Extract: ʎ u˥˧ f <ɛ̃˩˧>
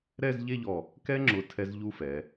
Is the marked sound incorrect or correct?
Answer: incorrect